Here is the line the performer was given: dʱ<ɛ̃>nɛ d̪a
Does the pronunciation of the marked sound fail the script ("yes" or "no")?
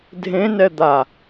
yes